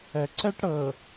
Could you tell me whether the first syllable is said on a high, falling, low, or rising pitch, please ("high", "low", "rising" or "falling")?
low